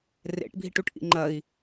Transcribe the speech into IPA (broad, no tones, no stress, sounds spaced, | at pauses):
r ḛ ʈ bʱ i ʈ u ʈ ʔ ḭ ŋ͡ǃ ɐ i̯